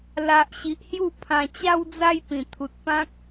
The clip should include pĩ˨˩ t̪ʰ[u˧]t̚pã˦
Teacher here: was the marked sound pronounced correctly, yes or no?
no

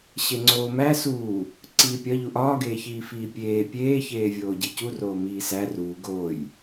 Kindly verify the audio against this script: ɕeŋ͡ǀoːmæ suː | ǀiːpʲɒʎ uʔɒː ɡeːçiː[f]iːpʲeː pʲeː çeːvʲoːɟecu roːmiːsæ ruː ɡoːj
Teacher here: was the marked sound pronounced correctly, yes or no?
yes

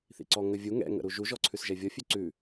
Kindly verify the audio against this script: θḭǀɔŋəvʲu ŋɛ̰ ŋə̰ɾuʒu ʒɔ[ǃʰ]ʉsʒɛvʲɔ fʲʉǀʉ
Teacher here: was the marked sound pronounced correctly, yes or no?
no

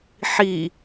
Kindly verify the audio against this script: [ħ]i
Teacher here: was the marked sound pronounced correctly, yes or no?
yes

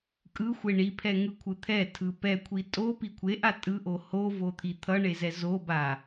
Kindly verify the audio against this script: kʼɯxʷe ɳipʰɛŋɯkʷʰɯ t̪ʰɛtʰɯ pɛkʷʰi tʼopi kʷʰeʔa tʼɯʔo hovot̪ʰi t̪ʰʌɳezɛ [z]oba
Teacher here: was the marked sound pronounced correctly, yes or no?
yes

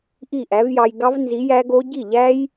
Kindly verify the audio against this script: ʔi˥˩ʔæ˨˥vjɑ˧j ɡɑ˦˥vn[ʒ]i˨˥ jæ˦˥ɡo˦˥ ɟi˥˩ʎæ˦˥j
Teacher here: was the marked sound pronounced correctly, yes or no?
no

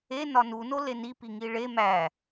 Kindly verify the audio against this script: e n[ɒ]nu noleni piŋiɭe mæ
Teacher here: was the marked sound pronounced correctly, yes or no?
yes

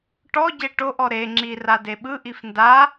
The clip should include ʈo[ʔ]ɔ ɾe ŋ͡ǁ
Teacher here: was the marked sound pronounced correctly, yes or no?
yes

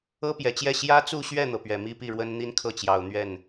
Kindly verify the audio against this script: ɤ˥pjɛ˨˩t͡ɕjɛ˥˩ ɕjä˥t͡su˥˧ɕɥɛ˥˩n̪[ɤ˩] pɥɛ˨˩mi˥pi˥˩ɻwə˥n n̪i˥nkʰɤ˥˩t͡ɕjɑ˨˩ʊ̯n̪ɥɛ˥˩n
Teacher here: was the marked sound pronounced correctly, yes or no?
yes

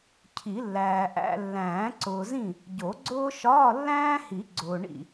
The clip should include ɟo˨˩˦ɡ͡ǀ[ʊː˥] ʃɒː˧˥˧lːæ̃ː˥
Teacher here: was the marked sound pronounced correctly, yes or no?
yes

